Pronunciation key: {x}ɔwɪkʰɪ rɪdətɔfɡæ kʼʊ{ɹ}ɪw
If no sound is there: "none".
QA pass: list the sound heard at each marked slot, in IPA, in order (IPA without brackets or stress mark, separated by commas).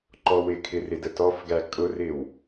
ǃ, r